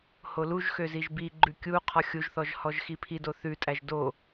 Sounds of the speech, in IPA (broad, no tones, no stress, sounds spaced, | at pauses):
h o l u ʒ x ø z i ʒ b i ɡ͡ǃ ʉ kʲ u qʰ ɔ xʲ u ʒ θ ɔ ʒ h ɔ ʒ x i pʰ i d o θ ʉ tʼ æ ʒ d o